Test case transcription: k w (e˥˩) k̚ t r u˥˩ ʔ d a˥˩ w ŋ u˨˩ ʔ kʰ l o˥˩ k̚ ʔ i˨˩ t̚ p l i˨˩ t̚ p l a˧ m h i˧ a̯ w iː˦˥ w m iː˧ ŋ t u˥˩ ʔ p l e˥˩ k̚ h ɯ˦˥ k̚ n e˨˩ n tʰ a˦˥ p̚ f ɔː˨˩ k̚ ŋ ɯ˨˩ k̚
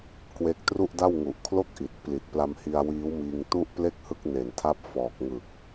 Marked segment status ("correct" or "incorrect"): correct